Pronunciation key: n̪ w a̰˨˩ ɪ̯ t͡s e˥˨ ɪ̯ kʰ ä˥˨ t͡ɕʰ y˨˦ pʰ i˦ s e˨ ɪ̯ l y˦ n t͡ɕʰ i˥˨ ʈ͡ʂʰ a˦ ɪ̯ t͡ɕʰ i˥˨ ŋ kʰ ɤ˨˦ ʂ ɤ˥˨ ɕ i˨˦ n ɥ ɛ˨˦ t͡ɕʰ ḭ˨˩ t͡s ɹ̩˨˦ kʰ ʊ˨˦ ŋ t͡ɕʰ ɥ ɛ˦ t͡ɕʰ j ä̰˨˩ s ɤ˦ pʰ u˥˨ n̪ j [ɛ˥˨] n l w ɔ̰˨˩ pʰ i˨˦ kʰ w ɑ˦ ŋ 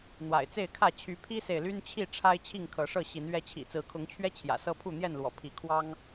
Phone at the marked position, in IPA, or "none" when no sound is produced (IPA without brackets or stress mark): ɛ˥˨